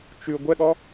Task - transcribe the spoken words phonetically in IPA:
t͡ʃ ʉ ɡʷ ɛ ɠ ɔ

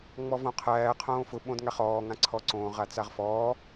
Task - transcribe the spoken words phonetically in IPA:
ŋ͡m ɔ v õ qʰ æː qʰ õː f ʊ ɓ õ d ŋ a χ ɔː ŋ ã ǀʰ ɔ ǀ õː ʁ a t͡s a ʁ f ɔː

